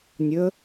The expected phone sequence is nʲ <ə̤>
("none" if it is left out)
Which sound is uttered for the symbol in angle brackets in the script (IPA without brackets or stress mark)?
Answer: ə